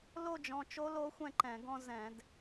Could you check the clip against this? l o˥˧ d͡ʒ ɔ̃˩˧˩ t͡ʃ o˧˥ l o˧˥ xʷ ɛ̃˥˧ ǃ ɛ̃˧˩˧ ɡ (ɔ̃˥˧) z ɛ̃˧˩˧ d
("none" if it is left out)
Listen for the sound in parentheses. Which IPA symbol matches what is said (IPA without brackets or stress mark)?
ɔ̃˥˧